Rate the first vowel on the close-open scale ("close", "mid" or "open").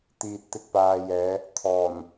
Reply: close